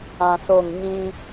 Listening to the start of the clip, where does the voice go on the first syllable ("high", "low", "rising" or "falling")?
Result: low